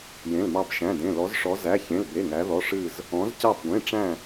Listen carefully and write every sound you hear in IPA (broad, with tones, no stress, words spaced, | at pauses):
jẽ˩˧˩lmɑ˧˩bʃæ̃˩˧˩dẽ˩˧˩ lɔ˩˧zʂɔ˩˧zæ˩˧˩ çẽ˩˧˩lbe˩˧˩ŋæ˩˧ðɔ˩˧˩ ʂɨ˧˩z | ɔ̃˩˧zcɑ˧˩bɡʷẽ˩˧˩ʈ͡ʂæ̃˧˩